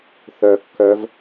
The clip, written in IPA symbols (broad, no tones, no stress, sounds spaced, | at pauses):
θ œ kː œ v